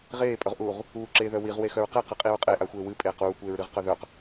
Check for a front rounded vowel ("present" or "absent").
present